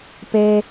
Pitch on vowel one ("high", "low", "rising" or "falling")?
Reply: high